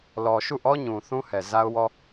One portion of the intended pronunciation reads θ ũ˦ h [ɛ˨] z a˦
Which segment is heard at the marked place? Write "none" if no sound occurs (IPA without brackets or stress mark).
ɛ˨